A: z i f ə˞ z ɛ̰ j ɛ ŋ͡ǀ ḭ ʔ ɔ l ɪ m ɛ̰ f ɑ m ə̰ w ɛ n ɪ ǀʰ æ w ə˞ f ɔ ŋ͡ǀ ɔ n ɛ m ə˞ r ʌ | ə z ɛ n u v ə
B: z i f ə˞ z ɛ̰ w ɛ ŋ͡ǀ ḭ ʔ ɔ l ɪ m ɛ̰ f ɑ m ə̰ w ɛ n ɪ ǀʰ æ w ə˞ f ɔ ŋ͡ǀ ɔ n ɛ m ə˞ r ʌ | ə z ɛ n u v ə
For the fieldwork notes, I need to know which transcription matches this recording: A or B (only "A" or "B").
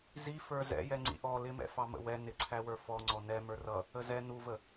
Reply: A